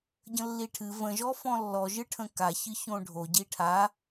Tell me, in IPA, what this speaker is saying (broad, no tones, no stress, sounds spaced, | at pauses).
ɟ ə̃ lː i ʈʰ ɨ v ə̃ ʒ ɔ f ɔ̃ lː ɔ ʒ ɨ ʈʰ ə̃ k a ç ɨ ç õ ɖʱ o ɟ i ʈʰ a